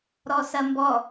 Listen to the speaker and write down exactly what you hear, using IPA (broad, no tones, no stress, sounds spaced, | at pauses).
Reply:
ɾ ɔ s ɐ m b ɔ